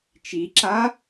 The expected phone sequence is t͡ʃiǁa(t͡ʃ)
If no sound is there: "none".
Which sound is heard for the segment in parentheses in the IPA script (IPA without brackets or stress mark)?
none